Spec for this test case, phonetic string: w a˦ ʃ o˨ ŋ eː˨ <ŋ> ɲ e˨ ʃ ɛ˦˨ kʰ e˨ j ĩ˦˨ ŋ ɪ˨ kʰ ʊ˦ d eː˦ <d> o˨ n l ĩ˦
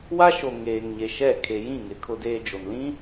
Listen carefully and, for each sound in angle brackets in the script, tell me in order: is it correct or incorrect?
correct, incorrect

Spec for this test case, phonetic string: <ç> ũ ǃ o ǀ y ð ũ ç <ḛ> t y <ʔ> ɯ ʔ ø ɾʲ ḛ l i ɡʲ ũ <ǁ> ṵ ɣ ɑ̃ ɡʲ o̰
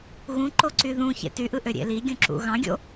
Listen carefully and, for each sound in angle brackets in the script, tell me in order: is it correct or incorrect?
incorrect, correct, correct, correct

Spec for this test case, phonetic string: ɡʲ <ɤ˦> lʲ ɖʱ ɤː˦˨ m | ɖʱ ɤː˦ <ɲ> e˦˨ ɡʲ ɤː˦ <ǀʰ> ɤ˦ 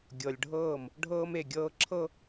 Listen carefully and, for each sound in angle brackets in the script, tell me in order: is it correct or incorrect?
incorrect, incorrect, incorrect

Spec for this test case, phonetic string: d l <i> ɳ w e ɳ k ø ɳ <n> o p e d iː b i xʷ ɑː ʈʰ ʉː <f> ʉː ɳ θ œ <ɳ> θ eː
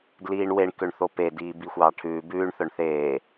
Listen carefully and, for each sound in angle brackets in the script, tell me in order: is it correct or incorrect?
incorrect, incorrect, incorrect, correct

